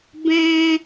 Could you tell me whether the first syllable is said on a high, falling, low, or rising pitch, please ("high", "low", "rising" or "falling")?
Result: high